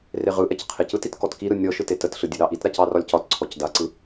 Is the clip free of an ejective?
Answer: yes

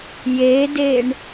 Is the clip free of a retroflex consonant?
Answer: no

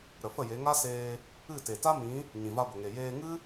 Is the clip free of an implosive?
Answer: yes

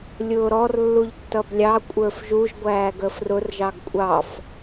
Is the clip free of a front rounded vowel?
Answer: yes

